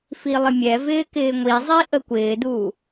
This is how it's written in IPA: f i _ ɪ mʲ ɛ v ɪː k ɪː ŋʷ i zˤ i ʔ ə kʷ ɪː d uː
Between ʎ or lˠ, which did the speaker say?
lˠ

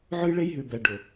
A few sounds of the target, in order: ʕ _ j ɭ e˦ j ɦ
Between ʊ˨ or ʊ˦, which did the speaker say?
ʊ˦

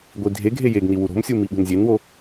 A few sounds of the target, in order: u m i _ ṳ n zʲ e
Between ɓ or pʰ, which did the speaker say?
ɓ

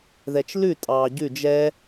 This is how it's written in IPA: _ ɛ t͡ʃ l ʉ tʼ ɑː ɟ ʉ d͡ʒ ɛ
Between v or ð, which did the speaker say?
ð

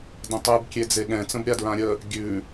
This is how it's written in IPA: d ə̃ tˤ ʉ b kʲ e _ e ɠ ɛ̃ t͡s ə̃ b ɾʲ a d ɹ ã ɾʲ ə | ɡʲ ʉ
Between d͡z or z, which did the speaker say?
d͡z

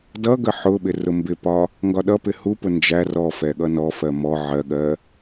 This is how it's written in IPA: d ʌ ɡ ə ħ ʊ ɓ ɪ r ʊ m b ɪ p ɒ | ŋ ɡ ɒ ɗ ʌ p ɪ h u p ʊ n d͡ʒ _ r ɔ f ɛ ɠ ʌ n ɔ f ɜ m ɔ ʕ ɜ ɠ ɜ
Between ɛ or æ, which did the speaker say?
æ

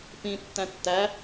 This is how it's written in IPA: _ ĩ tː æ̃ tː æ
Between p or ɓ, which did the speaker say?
p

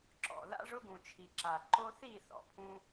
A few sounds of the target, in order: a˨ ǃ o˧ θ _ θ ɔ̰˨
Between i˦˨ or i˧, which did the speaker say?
i˦˨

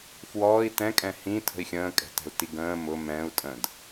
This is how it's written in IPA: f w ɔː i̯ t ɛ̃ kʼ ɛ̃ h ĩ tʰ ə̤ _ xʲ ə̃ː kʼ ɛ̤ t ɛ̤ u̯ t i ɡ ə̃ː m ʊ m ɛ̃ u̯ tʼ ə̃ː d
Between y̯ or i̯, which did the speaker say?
i̯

